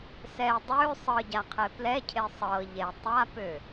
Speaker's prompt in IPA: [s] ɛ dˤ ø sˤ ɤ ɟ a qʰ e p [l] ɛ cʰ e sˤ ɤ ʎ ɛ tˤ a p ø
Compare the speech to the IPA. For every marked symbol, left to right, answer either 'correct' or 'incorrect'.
correct, correct

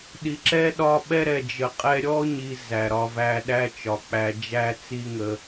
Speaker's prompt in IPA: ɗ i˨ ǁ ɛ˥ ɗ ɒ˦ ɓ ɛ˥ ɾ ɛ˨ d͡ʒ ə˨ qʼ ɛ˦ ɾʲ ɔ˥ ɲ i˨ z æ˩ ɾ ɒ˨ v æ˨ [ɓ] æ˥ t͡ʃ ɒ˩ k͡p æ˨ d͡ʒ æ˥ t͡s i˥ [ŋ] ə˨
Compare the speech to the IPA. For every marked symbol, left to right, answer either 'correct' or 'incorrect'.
incorrect: ɗ, correct

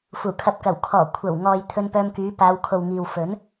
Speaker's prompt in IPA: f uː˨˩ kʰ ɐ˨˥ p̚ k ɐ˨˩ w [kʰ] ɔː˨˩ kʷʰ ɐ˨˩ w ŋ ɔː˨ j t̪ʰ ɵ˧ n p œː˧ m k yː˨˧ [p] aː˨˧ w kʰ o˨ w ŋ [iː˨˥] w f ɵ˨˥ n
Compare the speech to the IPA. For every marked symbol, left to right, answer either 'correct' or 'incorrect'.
correct, correct, incorrect: iː˨

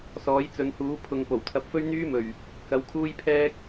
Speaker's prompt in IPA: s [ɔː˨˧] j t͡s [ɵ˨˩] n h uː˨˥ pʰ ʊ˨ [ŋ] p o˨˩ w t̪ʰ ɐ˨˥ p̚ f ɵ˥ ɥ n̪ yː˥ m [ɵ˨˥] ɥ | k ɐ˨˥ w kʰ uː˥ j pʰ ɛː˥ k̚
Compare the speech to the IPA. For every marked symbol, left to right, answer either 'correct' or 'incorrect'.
incorrect: ɔː˨˥, incorrect: ɵ˨˧, correct, incorrect: ɵ˨˩

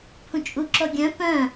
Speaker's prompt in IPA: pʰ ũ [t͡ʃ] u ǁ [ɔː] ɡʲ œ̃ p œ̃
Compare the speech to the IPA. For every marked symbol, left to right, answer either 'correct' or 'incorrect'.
incorrect: t͡ʃʼ, incorrect: ɔ

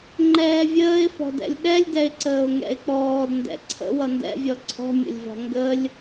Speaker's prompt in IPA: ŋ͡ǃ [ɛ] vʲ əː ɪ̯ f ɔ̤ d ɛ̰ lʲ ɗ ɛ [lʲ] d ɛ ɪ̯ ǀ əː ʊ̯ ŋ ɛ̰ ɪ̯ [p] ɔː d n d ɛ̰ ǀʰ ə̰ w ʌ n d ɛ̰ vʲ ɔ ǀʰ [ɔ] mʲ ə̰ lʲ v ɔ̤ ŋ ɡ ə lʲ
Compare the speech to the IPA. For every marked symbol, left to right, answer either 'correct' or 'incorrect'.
incorrect: ɛː, correct, incorrect: k͡p, incorrect: ɔ̤

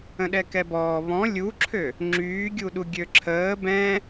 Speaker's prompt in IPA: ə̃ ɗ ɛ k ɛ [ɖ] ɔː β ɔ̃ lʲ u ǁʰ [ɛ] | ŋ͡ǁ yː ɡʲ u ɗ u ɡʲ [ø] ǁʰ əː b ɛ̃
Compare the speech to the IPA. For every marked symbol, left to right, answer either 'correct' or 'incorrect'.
incorrect: b, incorrect: ø, correct

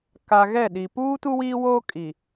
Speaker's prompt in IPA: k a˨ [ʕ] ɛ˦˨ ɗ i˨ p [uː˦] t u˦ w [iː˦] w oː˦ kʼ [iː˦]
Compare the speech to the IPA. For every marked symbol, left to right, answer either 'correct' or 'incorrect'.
incorrect: ɣ, correct, correct, incorrect: iː˨

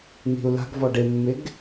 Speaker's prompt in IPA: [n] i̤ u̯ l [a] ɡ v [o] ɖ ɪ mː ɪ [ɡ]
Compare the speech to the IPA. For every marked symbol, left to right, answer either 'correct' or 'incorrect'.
correct, incorrect: a̤, incorrect: ɔ, correct

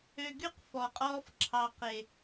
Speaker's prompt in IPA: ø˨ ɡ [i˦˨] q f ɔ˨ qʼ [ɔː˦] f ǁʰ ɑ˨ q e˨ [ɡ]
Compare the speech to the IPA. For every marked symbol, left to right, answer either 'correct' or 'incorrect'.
incorrect: y˦˨, correct, incorrect: none

